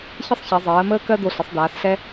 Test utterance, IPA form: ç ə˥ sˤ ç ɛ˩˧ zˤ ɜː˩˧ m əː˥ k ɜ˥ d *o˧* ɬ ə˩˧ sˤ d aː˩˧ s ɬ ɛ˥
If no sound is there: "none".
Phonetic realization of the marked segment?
o˧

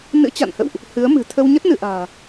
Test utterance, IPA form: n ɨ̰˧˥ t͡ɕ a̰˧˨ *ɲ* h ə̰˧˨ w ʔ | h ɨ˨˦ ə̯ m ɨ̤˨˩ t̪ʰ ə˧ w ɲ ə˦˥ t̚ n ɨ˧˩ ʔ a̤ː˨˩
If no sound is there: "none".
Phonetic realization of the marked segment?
n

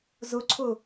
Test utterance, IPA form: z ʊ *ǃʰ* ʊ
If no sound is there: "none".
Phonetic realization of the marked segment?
ǀʰ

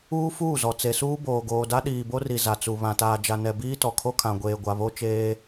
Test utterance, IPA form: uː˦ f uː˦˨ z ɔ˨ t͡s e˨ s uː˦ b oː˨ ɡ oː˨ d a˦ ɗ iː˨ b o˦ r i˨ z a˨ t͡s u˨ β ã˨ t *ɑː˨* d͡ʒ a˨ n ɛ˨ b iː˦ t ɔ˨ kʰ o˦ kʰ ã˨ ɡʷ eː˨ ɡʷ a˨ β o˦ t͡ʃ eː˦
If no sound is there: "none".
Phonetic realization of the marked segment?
aː˨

